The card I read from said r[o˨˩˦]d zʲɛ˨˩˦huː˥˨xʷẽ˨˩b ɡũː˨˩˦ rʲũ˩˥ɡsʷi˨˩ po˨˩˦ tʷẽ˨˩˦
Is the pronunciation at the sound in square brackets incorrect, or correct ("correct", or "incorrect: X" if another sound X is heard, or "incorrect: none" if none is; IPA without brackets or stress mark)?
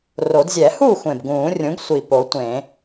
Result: correct